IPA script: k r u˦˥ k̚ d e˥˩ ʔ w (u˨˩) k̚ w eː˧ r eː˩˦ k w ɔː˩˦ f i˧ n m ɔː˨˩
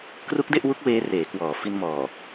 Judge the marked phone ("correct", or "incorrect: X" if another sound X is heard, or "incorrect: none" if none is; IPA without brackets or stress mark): incorrect: u˦˥